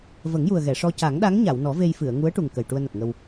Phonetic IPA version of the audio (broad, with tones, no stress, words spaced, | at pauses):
və˨˩˦ŋju˨˩ə̯ ɣɛ˨˩˨ʂɔ˧ ca˨˩˦ŋɗa˧˥ŋɲa˨˩˨wnɔ˨˩˦ ve˧jfɨ˨˩˨ə̯ŋu˧˥ə̯ʈu˨˩ŋ kə˨˩jʈu˧ə̯na˨˩t̚ŋə˧w